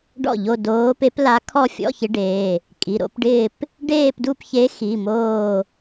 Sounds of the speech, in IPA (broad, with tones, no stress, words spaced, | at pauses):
ɖɔ̰˥˩ʎo˥˧ doː˧˥pe˧˥pla˧˥kʰɔ˥˧ fʲɔ̰˧˥˧çɪ˧˥ ɖeː˩˧˩ | kʼi˩˧˩ ɾo̰˧˥pɖɪː˥˧p | ɖeː˥˧pdu˥˧pçe˧˥xi˩˧˩ moː˥˧